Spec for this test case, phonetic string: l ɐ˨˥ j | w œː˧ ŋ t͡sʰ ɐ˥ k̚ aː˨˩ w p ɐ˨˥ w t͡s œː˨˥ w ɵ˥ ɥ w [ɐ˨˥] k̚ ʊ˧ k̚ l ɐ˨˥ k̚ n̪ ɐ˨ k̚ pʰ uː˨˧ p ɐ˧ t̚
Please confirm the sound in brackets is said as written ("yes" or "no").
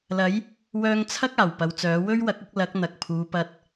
yes